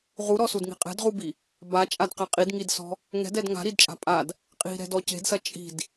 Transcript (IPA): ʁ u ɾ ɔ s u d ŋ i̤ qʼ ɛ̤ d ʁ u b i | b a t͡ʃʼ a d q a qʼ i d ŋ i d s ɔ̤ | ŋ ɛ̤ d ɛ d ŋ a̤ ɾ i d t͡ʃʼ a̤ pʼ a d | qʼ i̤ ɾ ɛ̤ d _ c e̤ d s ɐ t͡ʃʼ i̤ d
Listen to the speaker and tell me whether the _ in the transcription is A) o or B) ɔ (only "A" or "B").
B